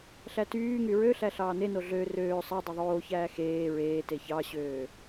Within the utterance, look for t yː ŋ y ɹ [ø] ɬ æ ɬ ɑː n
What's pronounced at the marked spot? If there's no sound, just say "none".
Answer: ø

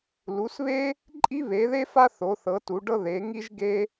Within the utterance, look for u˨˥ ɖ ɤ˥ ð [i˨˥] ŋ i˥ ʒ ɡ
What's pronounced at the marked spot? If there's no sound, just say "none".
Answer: e˨˥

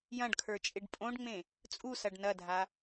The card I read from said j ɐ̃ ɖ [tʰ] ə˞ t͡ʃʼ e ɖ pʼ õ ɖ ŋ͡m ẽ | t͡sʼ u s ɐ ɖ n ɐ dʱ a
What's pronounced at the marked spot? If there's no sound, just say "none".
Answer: kʰ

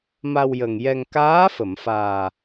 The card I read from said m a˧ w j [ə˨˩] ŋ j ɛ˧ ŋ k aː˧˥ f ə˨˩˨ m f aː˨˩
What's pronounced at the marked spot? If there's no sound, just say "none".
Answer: ə˨˩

